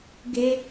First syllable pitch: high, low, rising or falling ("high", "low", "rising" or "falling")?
high